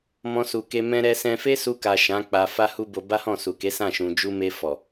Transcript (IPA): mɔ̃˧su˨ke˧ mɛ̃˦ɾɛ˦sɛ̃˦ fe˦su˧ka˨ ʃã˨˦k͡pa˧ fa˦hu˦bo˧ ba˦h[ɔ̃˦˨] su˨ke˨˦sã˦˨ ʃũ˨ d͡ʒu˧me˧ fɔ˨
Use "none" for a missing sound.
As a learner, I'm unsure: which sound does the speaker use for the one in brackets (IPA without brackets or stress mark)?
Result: ɔ̃˦˨